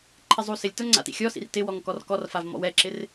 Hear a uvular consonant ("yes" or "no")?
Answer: no